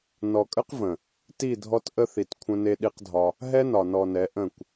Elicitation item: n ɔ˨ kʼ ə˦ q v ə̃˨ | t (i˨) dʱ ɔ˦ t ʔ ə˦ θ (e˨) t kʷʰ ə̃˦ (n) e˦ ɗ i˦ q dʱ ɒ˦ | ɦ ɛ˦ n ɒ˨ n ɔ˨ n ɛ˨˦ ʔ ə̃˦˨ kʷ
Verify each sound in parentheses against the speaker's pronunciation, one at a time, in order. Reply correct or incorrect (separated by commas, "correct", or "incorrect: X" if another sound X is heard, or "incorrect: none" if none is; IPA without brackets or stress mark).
incorrect: i˦˨, incorrect: i˨, correct